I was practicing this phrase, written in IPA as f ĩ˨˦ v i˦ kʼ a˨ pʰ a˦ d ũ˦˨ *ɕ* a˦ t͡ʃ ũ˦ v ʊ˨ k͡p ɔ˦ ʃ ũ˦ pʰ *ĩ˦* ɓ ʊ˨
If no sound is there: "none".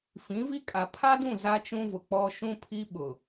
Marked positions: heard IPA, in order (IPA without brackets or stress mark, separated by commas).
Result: z, i˦